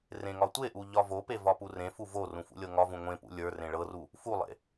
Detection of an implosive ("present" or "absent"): absent